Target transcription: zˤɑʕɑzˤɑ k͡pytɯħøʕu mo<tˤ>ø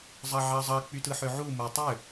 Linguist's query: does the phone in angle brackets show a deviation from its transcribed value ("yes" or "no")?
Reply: no